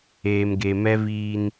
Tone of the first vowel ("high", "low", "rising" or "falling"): low